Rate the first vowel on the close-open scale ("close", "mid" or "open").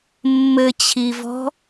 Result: mid